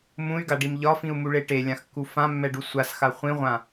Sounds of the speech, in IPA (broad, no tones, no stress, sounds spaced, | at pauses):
m ũ y̯ ɡ a ɖ i m ʎ ɒ f ĩ u̯ m u ɭ e ʈ e lʲ ã x kː u f ã mː ɛ ɖ u sʷ a s x a χʷ ĩ ʁʷ ã